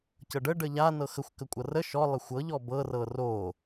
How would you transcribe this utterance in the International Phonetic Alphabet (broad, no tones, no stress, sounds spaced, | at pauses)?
c ɤ ɖ ə ɖ ə ʎ a n ɤ x ə xʷ k ə kʷʼ ɤ r ə ʃ ɔ lˠ ə xʷ ɤ ʎ ɔ b ɤ r ɤ r o